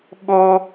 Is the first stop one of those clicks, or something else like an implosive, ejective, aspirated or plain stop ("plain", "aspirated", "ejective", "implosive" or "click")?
implosive